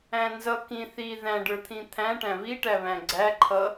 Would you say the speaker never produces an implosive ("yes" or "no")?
yes